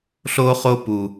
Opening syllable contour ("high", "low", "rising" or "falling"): high